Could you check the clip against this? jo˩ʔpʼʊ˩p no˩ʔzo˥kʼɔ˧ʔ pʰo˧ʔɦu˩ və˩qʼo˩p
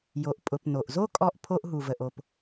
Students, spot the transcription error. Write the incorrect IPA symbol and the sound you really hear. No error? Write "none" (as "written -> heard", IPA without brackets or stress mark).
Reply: qʼ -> ʔ